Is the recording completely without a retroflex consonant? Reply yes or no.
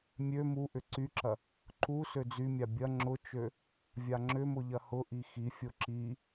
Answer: yes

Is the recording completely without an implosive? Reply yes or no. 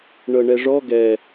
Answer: yes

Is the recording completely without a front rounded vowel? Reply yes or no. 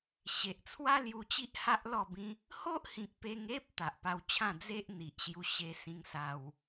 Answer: yes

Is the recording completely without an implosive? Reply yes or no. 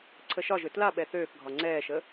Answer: no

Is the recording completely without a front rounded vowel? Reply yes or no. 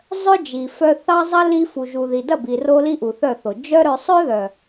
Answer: no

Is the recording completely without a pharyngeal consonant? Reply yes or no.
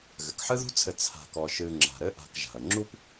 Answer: no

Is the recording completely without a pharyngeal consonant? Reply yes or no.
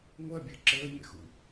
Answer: yes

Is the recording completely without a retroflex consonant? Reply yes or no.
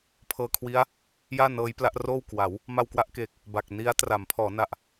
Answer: yes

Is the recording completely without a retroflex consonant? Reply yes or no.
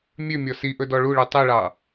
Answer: no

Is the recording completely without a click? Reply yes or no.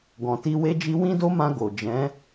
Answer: yes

